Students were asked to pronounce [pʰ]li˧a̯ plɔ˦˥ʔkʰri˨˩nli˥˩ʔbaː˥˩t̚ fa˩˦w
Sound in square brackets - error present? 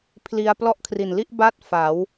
no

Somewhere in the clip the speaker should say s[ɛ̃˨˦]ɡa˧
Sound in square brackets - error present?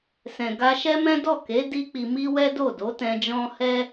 yes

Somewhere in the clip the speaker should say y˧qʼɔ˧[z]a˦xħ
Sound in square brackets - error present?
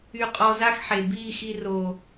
no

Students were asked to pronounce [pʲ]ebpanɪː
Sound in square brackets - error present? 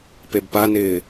yes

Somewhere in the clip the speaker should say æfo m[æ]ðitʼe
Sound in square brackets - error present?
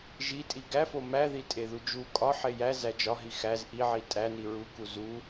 no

